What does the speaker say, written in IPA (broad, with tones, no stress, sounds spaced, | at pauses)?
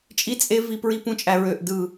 t͡ʃʼ i˦ t͡sʼ e˦ v i˦˨ p ɹ i˦ p ũ˦ t͡ʃʼ æ˦˨ ɹ ø˦˨ ʔ d ɯ˦˨